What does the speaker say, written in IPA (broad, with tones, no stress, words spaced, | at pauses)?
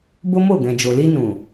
bo˦mo˦˨ɡɛ̃˨d͡ʒo˨ li˧ nũ˨